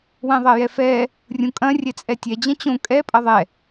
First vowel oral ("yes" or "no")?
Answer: no